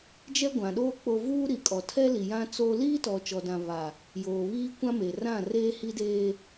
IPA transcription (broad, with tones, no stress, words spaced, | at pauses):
d͡ʒɛ˦ɡʷã˨ɗoː˦ k͡po˦ vuː˦ɾi˨kʼɔ˨ tʰɛ˦li˨ jã˦ t͡so˦ liː˦tɔ˨t͡ʃɔ˨dã˨ βa˨ | joː˨βiː˦kʷã˦ me˨rã˦˨ reː˦hi˦deː˦